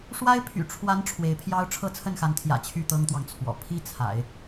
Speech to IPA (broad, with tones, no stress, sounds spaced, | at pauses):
ʂ w a˥ ɪ̯ pʰ y̰˨˩ ʈ͡ʂʰ w a˧˥ n ʈ͡ʂʰ w e˧˥ ɪ̯ pʰ j ɑ˥ ʊ̯ ʈ͡ʂʰ ɤ˥˧ t͡sʰ ə˥˩ n x a˧˥ n t̪ʰ j ä̰˨˩ t͡ɕʰ y˥˩ t̪ ɤ˥ ŋ t̪ w ɑ˨ ŋ t͡sʰ w ɔ̰˨˩ pʰ i˥ t͡sʰ a̰˨˩˦ ɪ̯